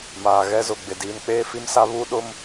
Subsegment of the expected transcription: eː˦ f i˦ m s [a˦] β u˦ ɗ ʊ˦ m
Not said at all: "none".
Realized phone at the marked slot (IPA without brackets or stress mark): a˦